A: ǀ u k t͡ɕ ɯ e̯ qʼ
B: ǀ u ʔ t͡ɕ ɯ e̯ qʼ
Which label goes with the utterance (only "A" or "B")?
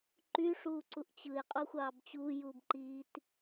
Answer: B